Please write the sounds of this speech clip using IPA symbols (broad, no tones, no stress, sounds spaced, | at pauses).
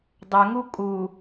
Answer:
dˤ ɵ ŋ u kʼ u